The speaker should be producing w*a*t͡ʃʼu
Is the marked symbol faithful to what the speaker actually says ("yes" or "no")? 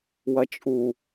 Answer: no